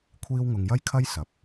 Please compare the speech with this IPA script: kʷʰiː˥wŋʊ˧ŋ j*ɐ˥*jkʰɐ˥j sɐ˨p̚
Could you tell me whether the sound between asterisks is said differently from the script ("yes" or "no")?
no